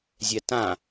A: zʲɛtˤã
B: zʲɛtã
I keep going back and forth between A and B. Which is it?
B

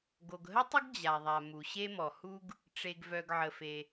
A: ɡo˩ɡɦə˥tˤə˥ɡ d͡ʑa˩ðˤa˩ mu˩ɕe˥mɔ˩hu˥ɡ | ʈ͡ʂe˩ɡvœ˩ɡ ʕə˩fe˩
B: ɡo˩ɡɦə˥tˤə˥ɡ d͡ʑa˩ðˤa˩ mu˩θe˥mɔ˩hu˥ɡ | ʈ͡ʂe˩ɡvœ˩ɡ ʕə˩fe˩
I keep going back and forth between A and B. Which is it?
A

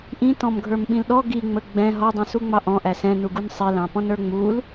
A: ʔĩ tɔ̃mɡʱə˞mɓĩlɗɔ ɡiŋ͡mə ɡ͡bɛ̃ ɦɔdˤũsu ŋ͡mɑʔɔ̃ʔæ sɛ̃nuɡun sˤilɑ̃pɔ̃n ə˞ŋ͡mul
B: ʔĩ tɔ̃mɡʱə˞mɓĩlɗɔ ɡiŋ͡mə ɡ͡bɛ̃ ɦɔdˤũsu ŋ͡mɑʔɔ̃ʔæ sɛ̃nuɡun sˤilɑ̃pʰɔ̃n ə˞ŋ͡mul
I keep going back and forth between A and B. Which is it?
A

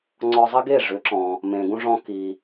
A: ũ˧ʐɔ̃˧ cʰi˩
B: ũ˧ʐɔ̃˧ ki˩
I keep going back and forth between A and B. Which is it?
B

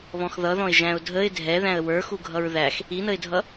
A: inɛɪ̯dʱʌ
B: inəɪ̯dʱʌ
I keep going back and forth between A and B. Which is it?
B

